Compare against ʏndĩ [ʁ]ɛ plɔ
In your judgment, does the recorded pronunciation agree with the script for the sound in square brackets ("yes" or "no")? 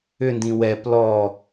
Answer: no